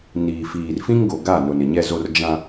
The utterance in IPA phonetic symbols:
niː˨fiː˨rfĩ˦ŋɡo˨ ɡa˦˨ nʊ˨nɪ˨ ɲɛ˦zo˦r d͡ʒã˦

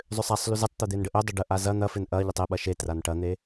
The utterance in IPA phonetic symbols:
zˤʏsˤasˤly zɪtˤt̪ø d̪enɖəʔødˤʏ ɖəʔa zɐ n̪ɐfɪn ʔɐ ʎətˤɪɓɐ ʃetran ʈɐn̪e

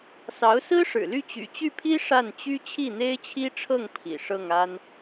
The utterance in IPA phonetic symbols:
sɑ˧˥ʊ̯sɹ̩˥ʂɻ̩˨˩ly˥˩ t͡ɕy̰˨˩t͡ɕy˥˩pʰi˥ ʂa˥˩nt͡ɕy˥ t͡ɕʰi˥˩n̪e˥ɪ̯t͡ɕʰi˥ʈ͡ʂʰɤ˥˩ŋ pʰḭ˨˩ ʂɤ˥˩ŋa˥n

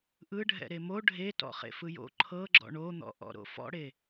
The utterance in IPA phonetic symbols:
ʔɯɖʱɛ̰ ɾemo ɖʱe tɔ̰χḛfɯjo̰ ǃʰɤɡ͡ǁɔ̰ ɳon̪ɔ̰ ʔɔ̰ɾo̰fɔ̰ɽe

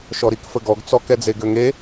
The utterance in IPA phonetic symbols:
ʃɔɾikfəɡɔɡ t͡sɔkɛd͡ze ɡøŋe

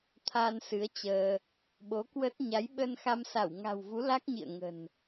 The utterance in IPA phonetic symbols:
t̪ʰa˧nsɨ˨˦ə̯ t͡ɕəː˧ | ɓo˨˦kwə˦˥t̚ ɲa˨˦jɓə˧nxa˧msa˧˩w ŋa̤˨˩wvu˨˦ la˦˥k̚ɲḭ˧˨ə̯ŋə̤˨˩n

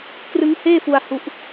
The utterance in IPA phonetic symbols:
krɯ˦˥ŋheː˥˩fu˧a̯ hu˦˥ʔ

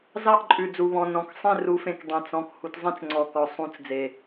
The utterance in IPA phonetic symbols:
zɑ˥˨ʔǃʼʉ˨˩d͡zu˨˩βɔ̃˨˩ nɔ̃˨˩ksˤẽ˥˨ ru˨˦fẽ˨˩k dˤẽ˨˩t͡sɔ̃˨˩k hu˨˦tzˤĩ˥˨t͡sŋ͡ǀɔ˨˩kɔ˨˩ sˤũ˨˦t͡s d͡ze˨˩

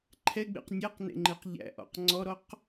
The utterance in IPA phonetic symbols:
ǃʰɛɡ͡bḛq nʲæqnḛŋ͡ǃeq ʎæ̰ʔɔ̰q ŋ͡ǀɔɾɔq

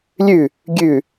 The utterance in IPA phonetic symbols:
lʲʉ | ɡʲʉ

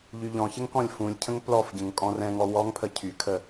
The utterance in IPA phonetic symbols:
ʎyʎɔ̃çəŋ kɔ̃lʲfũlʲcʰə̃ŋ plɔfɟə̃ŋ kʼɔ̃rɛ̃ŋɔ wɔŋpʰə cʰykʰə

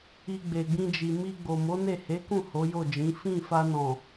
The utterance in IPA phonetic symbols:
i˧ɡ͡be˨ɡ͡bĩ˧d͡ʒi˨ mi˧ɡ͡bo˨ mo˨˦ne˦˨he˨˦kũ˦˨ ho˨˦jo˦˨d͡ʒĩ˨˦ fĩ˦˨ fa˧nɔ̃˨

